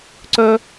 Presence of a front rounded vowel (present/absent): present